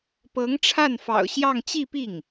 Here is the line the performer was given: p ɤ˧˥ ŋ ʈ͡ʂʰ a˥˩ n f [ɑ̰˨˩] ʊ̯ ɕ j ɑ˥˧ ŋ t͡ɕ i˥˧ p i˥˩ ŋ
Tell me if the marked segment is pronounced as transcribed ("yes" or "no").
yes